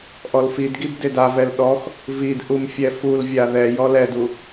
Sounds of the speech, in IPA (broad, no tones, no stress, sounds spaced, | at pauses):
ʔ ɔ l f i d ɡ i b d e d a v ɛ l ɗ ɔ x | v i d ʔ u m fʲ ɛ f u l vʲ a ð ɛ j ɔ l ɛ d u